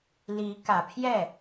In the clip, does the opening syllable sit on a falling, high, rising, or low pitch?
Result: rising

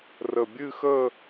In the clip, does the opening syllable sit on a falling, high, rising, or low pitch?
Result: low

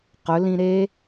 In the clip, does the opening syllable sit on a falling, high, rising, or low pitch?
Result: rising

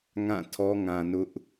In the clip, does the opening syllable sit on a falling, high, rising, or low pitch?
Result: falling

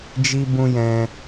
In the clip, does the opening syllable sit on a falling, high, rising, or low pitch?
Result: high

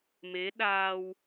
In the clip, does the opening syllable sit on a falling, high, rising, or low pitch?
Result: rising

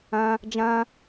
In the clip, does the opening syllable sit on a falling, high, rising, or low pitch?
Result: high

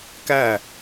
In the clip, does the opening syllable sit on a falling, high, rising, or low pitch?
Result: falling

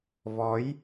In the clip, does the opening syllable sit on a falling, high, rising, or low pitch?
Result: rising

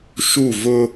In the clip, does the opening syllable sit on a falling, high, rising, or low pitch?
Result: falling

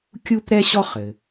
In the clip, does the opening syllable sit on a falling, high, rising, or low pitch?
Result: high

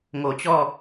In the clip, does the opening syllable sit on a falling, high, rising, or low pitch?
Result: low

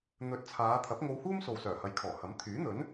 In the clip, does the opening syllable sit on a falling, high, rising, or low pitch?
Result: rising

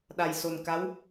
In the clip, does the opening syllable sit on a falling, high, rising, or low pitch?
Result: low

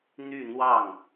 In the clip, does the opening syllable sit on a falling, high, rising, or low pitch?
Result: falling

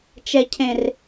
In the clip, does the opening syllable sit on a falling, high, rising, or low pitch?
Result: low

